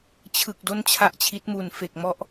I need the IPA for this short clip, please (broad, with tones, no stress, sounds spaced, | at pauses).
t͡ɕʰ ɯ˨˩ k̚ d o˧ n t͡ɕʰ a˨˩ ʔ t͡ɕʰ i˦˥ t̚ m u˨˩ n f e˨˩ k̚ m ɔ˥˩ ʔ